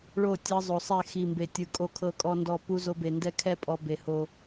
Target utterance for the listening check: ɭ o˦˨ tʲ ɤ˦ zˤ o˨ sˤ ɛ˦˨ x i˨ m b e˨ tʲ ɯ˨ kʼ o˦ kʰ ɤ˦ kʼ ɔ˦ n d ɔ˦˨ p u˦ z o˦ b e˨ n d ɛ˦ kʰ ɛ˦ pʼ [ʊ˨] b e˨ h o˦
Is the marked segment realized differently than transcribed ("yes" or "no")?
yes